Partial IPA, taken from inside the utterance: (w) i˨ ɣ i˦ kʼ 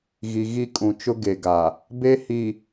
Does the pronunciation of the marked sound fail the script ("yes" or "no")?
yes